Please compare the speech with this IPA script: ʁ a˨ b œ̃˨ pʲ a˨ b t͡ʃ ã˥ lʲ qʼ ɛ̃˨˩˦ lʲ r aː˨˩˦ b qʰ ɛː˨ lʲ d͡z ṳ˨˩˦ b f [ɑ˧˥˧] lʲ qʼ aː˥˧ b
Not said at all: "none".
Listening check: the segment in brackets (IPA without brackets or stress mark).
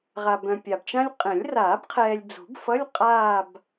ʌ˧˥˧